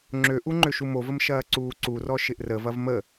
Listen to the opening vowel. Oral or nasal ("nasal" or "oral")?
oral